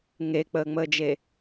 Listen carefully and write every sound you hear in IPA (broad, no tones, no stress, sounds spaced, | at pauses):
ŋ e k͡p əː ŋ͡m əː d͡ʒ e